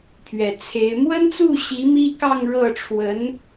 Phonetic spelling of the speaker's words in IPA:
pʰ ɥ ɛ˨˩ t͡sʰ e˧˥ ɪ̯ m w ə˥ n t͡s u˥˩ ɕ i˧˥ m i˥ k ɑ˥˧ ŋ ɻ ɤ˥˩ ʈ͡ʂʰ w ə˧˥ n

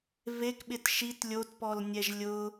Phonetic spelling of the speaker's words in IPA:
v e k ɓ ɪ t ʃ i t lʲ o t p ɔ l nʲ ɛ ʒ lʲ ʊ

